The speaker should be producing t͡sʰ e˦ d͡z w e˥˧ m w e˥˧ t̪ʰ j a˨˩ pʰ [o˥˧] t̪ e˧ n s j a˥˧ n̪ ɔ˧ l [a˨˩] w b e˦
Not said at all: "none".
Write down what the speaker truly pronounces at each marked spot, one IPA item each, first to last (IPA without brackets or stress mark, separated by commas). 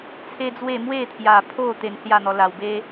o˥˧, a˨˩